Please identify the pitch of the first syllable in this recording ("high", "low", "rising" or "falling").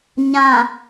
low